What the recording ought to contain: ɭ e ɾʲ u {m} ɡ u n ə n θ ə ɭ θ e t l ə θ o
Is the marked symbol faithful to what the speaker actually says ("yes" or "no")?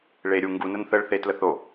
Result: no